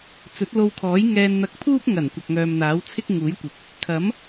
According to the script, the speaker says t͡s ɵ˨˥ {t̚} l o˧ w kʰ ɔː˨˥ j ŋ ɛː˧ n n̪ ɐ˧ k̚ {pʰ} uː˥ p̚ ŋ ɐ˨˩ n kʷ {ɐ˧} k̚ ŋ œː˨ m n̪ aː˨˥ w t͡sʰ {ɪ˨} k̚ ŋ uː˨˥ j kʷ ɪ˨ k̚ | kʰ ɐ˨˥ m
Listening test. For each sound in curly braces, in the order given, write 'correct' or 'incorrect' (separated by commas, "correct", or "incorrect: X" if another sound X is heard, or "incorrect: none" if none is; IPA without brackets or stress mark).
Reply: correct, correct, incorrect: ɐ˨, incorrect: ɪ˥